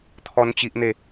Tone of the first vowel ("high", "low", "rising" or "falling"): high